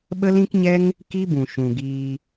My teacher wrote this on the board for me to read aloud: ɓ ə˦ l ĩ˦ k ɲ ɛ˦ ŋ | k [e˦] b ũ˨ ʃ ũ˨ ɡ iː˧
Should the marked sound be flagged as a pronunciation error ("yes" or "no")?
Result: yes